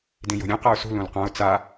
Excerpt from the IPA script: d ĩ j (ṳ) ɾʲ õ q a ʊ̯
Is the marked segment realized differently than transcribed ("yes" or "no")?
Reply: yes